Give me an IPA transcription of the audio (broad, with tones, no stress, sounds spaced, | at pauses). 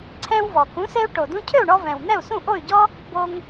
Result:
ǀʰ ɛ̃˧ w v ɔ˩ k ũ˩˥ s e˧ u̯ ʈ o˩ d ũ˧ cʰ ø˥˩ u̯ ɳ ɔ˧ v ɛ̃˩ w n̪ ɛ˥˩ u̯ s ũ˥˩ ʔ o˥˩ y̯ ɟ ɔ˥ | b o˧ ŋ